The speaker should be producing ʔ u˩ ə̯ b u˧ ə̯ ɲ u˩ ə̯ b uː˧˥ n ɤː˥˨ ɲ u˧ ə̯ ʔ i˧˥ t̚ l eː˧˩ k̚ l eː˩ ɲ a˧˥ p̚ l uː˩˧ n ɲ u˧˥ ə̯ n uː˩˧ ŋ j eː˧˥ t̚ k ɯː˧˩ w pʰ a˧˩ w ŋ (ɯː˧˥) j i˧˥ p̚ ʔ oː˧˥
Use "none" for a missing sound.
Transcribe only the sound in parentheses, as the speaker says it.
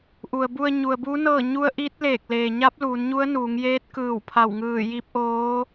ɯː˧˩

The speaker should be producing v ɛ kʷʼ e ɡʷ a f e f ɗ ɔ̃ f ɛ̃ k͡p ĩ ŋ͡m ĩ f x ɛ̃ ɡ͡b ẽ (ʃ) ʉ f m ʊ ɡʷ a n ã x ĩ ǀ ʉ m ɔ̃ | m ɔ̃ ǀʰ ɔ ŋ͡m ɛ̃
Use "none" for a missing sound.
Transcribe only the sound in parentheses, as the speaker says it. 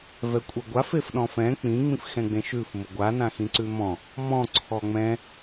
ʃ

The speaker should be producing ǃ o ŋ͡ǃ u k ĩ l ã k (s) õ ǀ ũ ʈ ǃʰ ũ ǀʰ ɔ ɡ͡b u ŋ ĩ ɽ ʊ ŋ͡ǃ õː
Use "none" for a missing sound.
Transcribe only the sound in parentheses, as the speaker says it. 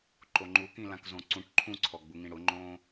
z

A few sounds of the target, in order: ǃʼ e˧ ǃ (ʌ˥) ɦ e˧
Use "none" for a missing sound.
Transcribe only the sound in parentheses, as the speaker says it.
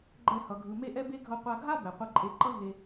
ʌ˥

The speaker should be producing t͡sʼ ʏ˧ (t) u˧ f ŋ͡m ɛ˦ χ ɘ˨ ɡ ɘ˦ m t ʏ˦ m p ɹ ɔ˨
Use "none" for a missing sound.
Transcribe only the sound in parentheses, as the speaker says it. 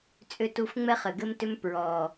t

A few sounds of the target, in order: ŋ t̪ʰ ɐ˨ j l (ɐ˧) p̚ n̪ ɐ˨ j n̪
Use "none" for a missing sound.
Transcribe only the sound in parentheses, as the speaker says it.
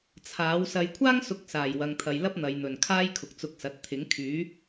ɐ˥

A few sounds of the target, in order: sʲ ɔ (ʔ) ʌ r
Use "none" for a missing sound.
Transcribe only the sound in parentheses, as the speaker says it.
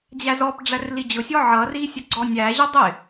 ʕ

